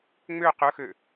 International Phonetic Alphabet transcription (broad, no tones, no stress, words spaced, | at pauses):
ŋ͡mø qɵxø